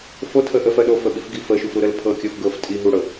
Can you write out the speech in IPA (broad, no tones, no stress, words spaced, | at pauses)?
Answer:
fo tʰəʔəfɜ ɗofə ɓifɡifəʃuf ɾuɾəlpʰɤkʲɤf ɡɤf tʼi ɦuɽɤ